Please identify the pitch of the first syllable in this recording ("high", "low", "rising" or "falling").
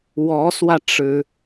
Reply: rising